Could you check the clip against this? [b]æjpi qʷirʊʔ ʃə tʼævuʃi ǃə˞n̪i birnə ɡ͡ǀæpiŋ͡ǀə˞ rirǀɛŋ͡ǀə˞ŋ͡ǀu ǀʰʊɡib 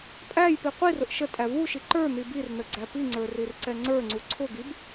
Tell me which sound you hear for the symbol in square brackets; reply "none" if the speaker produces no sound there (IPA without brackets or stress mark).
pʼ